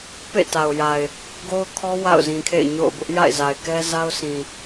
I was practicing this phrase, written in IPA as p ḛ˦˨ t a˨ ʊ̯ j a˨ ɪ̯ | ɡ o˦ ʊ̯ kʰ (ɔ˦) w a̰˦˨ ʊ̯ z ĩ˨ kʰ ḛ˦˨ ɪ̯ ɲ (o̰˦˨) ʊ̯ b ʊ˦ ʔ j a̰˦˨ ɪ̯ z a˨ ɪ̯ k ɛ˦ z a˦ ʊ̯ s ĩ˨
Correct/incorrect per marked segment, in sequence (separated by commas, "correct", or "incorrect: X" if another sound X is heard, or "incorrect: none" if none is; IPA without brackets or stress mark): correct, correct